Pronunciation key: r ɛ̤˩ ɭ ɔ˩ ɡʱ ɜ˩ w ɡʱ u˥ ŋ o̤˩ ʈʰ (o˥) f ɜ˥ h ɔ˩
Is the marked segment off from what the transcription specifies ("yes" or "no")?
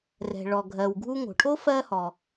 no